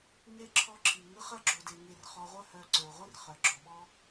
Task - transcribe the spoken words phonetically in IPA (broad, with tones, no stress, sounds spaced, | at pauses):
ŋ e˥ ǁʰ ɔ˦ ǁʰ i˩ ŋ ɯ˦ χ ɐ˥ ɡ͡ǁ o˨ d e˨ ŋ e˨ r χ ɔ˨ ʁʷ œ˦ h œ˨ ǀ ə˞˩ ʁʷ i˥ r χ œ˩ ɡ͡ǁ ɔ˩ ɓ ɔ˦